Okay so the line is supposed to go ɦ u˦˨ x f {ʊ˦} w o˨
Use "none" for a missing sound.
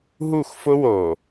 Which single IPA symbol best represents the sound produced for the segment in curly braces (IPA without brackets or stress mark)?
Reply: ʊ˦